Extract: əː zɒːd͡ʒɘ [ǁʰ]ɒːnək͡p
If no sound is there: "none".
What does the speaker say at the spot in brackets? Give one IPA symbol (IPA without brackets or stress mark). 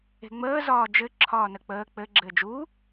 ǁʰ